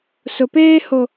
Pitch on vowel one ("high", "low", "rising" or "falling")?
low